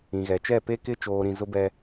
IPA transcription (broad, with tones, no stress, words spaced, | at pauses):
ĩ˨ ɣɛ˨t͡ʃɛ˦˨ pe˦kɪ˦ t͡ʃoː˦ɾĩ˦ zʊ˦bɛ˦